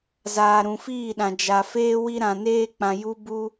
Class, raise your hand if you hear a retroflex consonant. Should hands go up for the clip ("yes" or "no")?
no